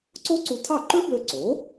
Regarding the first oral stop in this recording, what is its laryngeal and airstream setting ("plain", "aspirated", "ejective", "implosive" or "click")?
click